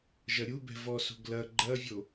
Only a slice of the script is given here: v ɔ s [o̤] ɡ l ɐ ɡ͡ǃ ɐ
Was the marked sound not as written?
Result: no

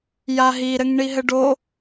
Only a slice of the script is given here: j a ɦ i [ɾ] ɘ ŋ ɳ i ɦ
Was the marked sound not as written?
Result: no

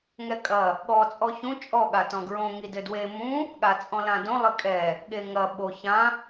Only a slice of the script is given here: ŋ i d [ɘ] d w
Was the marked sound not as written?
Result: no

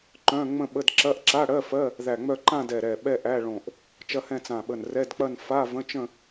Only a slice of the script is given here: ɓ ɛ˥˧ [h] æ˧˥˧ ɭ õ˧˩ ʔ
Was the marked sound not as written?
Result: yes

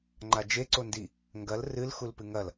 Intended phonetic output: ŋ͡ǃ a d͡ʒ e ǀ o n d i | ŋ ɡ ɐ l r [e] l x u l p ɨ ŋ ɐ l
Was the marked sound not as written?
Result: yes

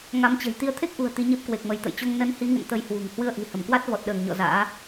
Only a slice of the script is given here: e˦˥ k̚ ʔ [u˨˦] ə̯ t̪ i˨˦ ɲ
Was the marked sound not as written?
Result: yes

